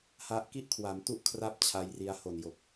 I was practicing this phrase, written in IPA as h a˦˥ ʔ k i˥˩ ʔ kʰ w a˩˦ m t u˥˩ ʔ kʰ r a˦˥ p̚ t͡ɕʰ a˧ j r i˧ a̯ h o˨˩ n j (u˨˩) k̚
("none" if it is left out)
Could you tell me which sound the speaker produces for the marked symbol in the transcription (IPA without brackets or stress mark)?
o˨˩